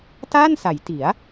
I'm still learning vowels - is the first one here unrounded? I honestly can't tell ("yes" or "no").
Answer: yes